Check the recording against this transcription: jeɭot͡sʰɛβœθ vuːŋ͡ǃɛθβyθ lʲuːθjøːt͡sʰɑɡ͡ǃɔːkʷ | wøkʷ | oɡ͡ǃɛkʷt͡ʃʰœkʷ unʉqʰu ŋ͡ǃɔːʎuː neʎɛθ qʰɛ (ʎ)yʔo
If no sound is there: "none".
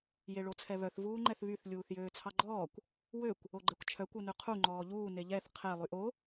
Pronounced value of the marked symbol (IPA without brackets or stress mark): lˠ